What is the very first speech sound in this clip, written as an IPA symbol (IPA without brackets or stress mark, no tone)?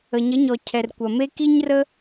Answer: ə